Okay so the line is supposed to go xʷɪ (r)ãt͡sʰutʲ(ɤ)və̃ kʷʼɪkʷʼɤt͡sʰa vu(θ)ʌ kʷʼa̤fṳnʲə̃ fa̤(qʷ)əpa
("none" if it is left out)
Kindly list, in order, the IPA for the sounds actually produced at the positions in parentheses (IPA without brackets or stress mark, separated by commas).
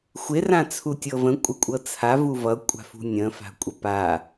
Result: r, ɤ, v, kʷʼ